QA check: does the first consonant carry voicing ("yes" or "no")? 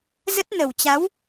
yes